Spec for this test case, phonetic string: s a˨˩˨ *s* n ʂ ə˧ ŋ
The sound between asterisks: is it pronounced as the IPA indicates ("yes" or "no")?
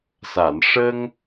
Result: no